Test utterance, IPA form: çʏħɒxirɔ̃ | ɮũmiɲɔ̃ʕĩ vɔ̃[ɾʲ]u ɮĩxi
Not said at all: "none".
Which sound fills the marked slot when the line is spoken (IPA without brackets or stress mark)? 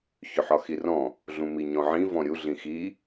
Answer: ɾʲ